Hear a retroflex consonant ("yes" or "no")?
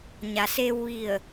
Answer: no